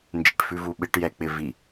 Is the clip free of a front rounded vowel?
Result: yes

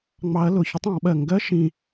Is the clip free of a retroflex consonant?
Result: yes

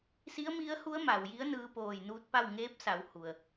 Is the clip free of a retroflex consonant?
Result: yes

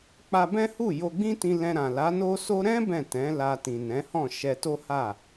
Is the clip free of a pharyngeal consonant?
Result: yes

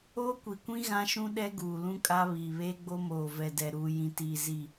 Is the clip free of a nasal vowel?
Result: no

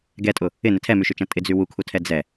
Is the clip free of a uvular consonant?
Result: yes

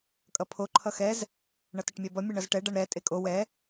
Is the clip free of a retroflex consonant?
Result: no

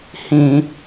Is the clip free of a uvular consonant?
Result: yes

